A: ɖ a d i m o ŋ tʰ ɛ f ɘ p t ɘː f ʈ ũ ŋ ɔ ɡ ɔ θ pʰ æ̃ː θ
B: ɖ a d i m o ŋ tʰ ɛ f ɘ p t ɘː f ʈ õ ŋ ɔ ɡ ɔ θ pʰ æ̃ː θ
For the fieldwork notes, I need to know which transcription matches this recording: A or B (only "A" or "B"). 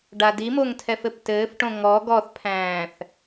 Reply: B